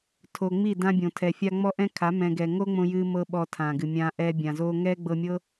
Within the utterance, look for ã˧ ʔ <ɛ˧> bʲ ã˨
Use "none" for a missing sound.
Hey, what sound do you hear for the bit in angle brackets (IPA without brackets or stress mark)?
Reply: ɛ˧